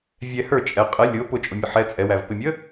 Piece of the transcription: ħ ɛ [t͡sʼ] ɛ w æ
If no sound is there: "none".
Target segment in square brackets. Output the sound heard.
t͡sʼ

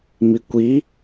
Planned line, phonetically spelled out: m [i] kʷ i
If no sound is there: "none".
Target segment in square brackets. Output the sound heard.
i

